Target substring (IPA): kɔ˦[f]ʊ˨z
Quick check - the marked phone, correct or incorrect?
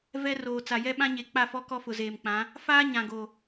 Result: correct